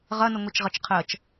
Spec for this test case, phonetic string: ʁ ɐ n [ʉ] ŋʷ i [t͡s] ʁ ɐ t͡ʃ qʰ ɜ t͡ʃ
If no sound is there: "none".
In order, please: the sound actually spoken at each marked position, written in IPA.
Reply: ə, t͡ʃ

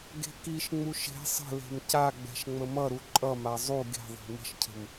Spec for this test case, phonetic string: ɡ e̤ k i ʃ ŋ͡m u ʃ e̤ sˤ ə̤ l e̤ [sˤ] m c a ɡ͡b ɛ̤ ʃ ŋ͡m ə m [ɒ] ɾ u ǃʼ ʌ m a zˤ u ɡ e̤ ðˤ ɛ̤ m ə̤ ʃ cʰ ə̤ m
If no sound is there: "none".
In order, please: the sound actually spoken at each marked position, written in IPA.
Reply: none, ʌ

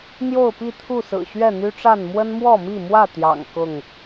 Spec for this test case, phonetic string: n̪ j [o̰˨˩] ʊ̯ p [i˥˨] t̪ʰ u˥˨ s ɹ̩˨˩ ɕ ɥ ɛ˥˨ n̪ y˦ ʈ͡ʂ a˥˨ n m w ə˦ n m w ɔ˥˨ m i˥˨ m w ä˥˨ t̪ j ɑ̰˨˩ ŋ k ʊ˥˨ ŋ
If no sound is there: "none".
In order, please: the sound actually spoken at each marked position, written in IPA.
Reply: o˥˨, i˥˨

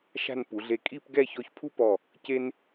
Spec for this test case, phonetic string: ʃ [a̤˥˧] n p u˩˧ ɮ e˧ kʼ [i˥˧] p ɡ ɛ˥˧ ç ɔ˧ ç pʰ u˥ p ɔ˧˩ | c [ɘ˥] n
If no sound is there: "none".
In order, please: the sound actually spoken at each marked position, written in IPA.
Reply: a̤˥˧, i˥˧, e˥

